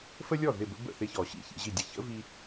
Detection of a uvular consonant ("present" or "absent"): absent